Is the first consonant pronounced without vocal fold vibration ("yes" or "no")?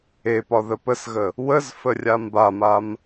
yes